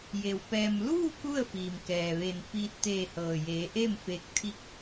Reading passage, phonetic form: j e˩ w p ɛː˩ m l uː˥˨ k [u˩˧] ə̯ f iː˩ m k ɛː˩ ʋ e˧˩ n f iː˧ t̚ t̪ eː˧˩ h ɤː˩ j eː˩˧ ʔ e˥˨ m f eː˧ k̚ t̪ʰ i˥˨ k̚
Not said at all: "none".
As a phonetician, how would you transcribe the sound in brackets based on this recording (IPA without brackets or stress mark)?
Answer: u˥˨